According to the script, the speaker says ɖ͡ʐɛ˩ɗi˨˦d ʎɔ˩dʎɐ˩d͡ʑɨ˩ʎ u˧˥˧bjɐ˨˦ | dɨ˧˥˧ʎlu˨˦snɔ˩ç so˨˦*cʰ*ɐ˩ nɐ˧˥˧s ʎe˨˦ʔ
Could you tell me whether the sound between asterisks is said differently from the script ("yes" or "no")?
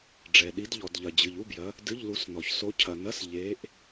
no